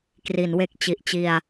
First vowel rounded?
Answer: no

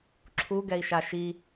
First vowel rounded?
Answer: yes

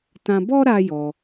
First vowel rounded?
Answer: no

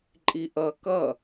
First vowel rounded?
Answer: no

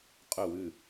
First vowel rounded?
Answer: yes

